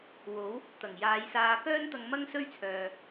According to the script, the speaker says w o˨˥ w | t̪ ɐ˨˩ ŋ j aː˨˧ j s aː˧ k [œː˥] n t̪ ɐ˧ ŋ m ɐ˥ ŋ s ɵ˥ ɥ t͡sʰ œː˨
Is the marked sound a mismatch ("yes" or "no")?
no